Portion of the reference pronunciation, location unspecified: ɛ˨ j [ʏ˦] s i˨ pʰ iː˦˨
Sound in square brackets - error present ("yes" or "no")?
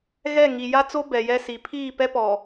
yes